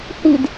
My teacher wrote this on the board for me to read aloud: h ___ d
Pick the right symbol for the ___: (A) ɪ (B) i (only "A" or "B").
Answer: B